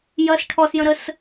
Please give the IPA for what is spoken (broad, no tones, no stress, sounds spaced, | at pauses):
j ɐ s ʈʰ ɔ s j ə̃ ɾ ə s